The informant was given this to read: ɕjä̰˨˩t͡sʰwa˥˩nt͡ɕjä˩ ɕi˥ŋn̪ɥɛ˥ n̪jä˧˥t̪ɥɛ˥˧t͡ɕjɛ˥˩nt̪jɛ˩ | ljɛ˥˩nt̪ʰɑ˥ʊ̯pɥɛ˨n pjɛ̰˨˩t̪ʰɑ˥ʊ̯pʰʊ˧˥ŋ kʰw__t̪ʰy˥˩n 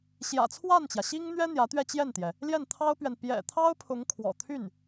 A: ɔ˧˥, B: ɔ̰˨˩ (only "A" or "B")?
B